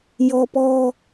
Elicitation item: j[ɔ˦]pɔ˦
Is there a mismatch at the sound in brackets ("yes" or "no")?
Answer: no